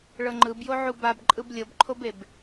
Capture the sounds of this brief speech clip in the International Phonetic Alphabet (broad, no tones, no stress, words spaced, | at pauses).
ɭɤŋ͡ǃɯbjoʕu babǃʼɯb lʲɤbǃʰobeb